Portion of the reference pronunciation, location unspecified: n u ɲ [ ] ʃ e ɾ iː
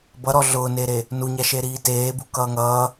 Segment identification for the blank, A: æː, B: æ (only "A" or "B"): B